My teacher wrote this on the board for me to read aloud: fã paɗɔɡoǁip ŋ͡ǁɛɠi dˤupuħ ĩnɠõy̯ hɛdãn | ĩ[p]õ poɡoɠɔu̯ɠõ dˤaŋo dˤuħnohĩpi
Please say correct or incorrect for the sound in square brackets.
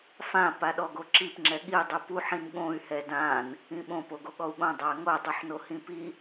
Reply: incorrect